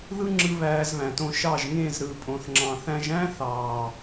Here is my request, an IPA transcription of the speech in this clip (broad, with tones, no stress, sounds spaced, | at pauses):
ð ɯ˦ ŋ͡ǁ ɯ˧ β æː˧ z β æ̃˨ t õ˧ ʃ ɑ˦˨ ʒ ŋ ẽ˦˨ z ɾ ɯ˨˦ pʼ õ˧ θ ŋ͡ǁ ɑ̃˧ θ æ̃˦ ʒ æ̃˦ θ ɑː˨